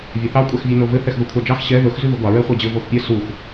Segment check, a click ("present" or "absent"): absent